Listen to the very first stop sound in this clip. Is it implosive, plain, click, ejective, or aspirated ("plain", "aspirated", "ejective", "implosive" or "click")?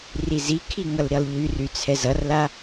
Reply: aspirated